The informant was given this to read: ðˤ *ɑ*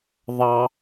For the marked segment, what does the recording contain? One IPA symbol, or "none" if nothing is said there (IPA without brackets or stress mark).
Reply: ɑ